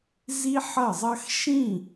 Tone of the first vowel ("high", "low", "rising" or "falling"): high